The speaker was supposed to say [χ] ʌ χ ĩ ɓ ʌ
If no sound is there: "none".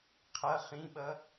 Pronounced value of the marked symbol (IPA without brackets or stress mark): qʰ